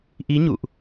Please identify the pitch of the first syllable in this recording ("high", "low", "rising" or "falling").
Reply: rising